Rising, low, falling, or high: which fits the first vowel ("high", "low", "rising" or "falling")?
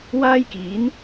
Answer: high